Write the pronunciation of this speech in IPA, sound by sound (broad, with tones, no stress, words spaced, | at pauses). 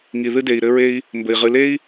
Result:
ŋi˨ðɨ˦de˨i̯ɾɘ˦ ɹe˦i̯ | mbɘ˨i̯ ʁɨ˨le˦i̯